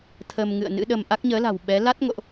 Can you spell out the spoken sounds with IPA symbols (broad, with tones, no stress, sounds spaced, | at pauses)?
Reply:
t̪ʰ ə˧ m ŋ ɨ̰˧˨ ə̯ n ɨ̰˧˥ ɗ ə˧ m ʔ a˦˥ k̚ ɲ əː˨˦ l a̤˨˩ w ɓ ɛ˨˦ l a˦˥ t̚ ŋ o̰˧˨ ʔ